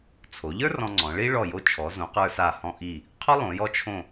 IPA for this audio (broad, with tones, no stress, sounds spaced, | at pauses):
t͡sʰ o˩˧ ʎ ə˞˥ r ɔ̃˧ ŋ͡ǀ ɔ̃˩˧ ɭ i˥ ɭ ɔ˧˩ j o˧ t͡ʃʰ ɔ˩˧ z õ˩˧ q ə˞˧ s a˧˩ h ɔ̃˧ ʔ i˧˩ | qʰ ɔ˥ lˠ õ˩˧ j ɔ˧ t͡ʃʰ õ˧˩